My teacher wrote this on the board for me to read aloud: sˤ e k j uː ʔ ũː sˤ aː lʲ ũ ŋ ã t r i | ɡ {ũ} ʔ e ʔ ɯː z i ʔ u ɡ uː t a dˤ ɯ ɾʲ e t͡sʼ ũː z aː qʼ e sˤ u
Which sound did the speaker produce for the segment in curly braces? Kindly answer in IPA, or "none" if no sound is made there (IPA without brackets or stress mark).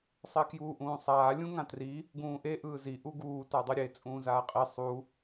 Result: ũː